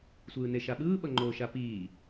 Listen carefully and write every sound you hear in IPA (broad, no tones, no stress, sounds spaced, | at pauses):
sʷ ɯː n e ʃ a ɓ ɯː ɓ ʌ ŋ͡ǃ oː ʃ a p iː